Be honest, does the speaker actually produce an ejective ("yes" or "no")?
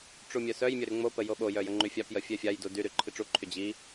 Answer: no